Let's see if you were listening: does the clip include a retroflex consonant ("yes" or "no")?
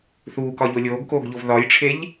yes